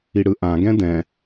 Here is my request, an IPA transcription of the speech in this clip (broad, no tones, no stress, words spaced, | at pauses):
iɽɯʔãɡɛ̃ dɛ̃